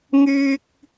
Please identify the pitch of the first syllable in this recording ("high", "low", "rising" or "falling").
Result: high